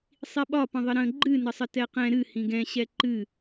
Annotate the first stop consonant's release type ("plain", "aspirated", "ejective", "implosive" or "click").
implosive